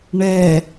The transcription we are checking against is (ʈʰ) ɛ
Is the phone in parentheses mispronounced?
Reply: yes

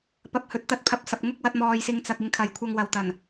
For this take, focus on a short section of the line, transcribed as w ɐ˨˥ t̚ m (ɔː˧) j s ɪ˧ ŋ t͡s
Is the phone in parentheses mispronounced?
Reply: no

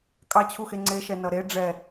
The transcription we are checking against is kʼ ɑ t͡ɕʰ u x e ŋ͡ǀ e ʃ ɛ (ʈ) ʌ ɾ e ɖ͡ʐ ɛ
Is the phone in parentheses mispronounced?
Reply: yes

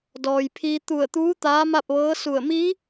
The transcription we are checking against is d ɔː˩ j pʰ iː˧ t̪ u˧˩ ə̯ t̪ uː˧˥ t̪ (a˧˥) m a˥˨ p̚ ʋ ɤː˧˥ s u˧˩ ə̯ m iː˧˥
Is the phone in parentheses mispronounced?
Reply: yes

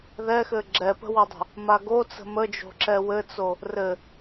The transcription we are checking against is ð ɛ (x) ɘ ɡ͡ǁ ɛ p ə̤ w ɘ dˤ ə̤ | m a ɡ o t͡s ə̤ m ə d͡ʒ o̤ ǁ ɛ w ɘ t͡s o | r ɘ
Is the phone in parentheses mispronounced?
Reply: no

